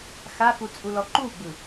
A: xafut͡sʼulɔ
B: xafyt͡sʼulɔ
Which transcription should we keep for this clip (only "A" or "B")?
A